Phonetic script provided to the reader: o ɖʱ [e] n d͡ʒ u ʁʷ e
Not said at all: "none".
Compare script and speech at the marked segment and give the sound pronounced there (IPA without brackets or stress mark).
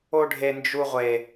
e